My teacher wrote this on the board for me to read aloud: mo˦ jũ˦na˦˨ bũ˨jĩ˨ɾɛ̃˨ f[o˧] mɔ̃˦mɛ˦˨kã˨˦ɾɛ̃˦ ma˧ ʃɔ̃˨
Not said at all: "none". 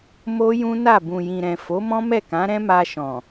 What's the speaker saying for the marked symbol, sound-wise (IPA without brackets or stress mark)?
o˨˦